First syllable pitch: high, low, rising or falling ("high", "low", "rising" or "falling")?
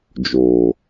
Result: low